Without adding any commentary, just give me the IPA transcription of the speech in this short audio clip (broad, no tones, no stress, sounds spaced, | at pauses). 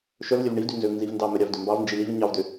ʃ œ v lʲ œ v ɳ i v d y n z ø v n z i v n d ɑ m œ ɾʲ ɑ v d ø m b ɑ v n d͡ʒ i l i v ɲ ɑ v d ø